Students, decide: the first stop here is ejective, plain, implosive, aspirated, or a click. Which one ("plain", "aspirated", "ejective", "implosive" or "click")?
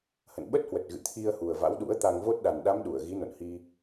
implosive